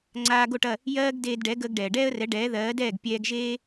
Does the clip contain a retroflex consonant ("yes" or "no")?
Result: yes